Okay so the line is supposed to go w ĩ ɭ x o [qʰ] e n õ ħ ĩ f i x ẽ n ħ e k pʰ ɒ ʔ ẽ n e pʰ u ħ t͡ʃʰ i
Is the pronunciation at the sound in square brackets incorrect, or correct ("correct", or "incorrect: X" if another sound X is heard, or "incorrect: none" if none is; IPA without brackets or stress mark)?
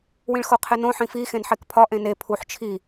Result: correct